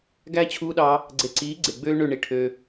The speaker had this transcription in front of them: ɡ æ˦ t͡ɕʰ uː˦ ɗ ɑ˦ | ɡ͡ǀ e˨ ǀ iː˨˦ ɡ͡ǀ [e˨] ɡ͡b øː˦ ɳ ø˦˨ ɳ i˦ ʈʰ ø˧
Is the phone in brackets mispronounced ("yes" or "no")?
no